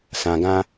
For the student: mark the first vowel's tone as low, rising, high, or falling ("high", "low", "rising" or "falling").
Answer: low